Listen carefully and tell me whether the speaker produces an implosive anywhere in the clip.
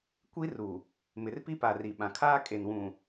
yes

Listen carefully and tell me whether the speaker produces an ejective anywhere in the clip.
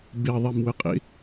yes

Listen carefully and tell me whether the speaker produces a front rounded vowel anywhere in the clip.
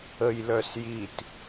yes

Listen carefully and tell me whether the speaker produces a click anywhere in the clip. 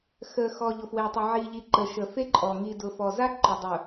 yes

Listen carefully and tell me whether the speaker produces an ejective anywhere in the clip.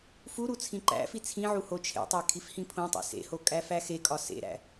yes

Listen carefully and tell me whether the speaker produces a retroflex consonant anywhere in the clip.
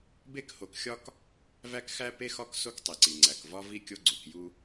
no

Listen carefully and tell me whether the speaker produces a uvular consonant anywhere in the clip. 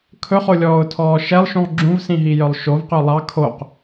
yes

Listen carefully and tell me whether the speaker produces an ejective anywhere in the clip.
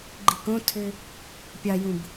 no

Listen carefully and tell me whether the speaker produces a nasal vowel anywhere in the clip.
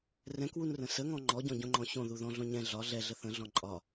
yes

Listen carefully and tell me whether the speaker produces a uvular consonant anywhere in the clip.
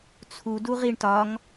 yes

